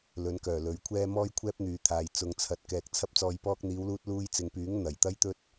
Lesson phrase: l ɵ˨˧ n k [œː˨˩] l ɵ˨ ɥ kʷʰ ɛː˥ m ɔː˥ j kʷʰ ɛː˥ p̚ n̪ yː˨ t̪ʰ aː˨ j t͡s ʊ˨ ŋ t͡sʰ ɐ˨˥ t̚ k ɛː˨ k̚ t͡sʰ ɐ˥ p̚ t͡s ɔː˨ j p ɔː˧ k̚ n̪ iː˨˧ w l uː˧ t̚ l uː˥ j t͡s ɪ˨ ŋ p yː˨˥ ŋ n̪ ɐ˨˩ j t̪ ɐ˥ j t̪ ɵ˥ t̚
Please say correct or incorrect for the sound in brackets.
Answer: correct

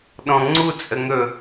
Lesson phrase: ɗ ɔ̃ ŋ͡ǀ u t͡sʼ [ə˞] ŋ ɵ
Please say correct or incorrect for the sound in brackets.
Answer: incorrect: ə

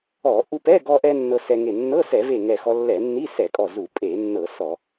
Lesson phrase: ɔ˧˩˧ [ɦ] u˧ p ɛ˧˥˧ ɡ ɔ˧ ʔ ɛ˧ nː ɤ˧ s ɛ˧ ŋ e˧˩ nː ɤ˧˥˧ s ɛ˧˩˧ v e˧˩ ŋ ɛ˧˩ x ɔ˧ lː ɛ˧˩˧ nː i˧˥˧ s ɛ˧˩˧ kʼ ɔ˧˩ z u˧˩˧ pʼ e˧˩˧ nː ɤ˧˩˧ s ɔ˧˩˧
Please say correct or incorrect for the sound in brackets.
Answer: incorrect: ʔ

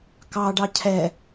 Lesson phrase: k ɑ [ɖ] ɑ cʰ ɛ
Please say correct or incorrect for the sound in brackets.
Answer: correct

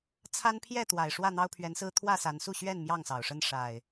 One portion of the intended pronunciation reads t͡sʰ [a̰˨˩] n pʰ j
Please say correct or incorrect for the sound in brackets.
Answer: incorrect: a˦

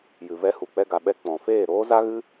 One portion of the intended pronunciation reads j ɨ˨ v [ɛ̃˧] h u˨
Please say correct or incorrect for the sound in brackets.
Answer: incorrect: ɛ˧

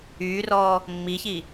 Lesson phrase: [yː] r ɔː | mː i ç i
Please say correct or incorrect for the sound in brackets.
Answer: correct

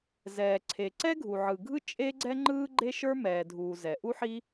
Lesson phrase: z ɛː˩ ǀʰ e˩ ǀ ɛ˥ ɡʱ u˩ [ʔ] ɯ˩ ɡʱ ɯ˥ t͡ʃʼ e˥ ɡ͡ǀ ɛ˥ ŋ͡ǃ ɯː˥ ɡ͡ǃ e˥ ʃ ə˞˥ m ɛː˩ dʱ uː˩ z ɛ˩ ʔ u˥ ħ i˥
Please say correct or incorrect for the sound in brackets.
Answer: incorrect: ʕ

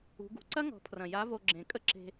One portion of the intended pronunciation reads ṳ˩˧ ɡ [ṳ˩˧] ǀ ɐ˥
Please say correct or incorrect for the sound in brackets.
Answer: correct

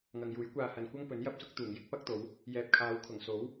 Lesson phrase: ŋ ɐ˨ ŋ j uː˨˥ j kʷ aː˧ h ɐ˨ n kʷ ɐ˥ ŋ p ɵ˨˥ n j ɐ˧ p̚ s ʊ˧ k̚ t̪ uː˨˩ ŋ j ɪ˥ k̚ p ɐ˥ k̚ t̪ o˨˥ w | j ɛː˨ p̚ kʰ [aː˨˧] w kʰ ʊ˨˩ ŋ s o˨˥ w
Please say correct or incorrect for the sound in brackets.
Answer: correct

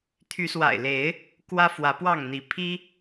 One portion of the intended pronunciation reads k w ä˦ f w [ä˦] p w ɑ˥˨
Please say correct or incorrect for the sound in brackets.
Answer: incorrect: ä˨˦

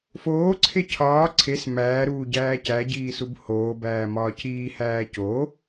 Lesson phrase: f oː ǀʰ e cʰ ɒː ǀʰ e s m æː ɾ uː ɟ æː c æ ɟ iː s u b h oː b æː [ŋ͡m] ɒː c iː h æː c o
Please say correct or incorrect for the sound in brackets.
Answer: incorrect: m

